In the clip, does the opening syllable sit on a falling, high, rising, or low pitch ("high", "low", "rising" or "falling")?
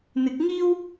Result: rising